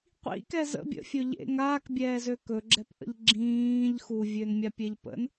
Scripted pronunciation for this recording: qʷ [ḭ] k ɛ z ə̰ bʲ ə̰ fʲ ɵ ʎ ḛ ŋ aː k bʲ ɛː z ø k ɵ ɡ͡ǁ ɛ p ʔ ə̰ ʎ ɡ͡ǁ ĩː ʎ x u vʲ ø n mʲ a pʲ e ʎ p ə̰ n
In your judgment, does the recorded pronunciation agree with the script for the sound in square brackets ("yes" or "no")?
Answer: yes